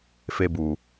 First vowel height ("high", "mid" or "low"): mid